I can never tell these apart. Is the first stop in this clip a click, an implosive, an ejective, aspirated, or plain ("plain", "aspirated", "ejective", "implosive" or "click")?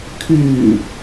aspirated